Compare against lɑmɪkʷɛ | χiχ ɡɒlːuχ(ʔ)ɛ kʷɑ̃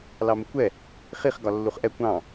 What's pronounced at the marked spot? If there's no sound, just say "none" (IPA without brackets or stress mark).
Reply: ʔ